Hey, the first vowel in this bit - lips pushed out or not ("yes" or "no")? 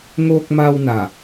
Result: yes